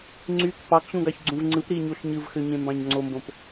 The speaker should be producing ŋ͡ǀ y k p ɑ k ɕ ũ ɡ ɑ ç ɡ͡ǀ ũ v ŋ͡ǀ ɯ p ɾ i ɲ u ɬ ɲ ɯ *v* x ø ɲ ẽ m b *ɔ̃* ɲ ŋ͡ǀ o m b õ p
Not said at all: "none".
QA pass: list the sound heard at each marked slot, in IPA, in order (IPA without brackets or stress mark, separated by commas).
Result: v, ɑ̃